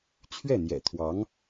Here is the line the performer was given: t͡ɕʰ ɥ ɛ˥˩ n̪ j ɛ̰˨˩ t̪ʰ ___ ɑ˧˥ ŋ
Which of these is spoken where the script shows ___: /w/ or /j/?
w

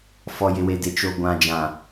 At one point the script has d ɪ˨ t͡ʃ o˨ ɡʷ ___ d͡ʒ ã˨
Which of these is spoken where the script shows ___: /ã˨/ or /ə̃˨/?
ã˨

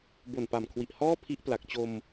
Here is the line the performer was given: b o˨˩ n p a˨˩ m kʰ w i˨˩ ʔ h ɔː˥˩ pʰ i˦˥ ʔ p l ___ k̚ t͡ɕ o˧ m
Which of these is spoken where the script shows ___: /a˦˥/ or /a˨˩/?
a˨˩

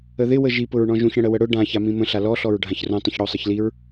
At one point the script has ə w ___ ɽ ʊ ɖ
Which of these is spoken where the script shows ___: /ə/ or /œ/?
ə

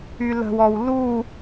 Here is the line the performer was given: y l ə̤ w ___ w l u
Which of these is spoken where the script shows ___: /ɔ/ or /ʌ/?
ɔ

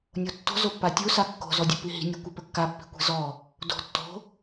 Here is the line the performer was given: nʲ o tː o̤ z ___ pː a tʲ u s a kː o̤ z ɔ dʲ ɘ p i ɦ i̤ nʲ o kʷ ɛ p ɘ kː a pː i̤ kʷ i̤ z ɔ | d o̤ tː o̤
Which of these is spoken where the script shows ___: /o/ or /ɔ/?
o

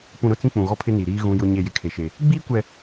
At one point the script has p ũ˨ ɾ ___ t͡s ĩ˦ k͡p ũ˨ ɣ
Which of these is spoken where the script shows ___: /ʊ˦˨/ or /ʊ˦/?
ʊ˦˨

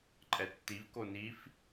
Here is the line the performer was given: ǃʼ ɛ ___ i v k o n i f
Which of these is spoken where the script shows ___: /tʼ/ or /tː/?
tː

